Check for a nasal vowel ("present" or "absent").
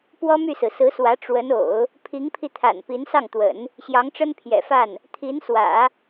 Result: absent